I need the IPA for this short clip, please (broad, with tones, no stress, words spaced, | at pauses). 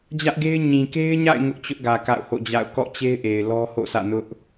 d͡ʑä˦ʔɡe˦ɪ̯ ɲĩ˨ke˦ɪ̯ɲa̰˦˨ɪ̯ ŋʊ˦ʔt͡ɕʊ˦ʔɡä˨ ka̰˦˨ʊ̯ho̰˦˨d͡ʑa̰˦˨ʊ̯ kɔ̰˦˨t͡ɕe˦ɪ̯ʔe˨ɪ̯ lɔ˦ho̰˦˨sʰä̰˦˨ nʊ˦ʔ